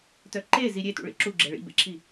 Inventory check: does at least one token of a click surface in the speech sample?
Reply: yes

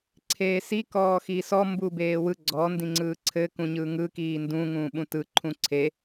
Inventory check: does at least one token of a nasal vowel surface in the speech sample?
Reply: yes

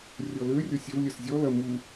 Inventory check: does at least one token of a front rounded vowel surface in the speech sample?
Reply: yes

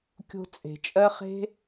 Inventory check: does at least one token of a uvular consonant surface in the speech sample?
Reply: yes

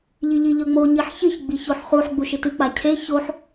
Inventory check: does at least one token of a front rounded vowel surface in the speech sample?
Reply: no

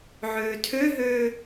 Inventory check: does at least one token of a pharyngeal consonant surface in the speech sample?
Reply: yes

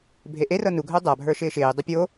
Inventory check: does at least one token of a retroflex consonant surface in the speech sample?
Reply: no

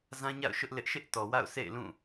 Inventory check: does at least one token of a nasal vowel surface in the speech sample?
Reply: yes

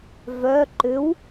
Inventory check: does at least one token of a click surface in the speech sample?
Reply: yes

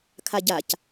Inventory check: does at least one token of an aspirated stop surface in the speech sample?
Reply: yes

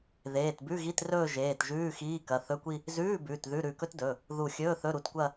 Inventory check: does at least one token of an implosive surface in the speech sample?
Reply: no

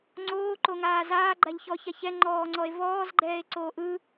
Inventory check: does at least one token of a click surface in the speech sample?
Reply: yes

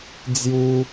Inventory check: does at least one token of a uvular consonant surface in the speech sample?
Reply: no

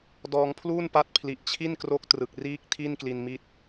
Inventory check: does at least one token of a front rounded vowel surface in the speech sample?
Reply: no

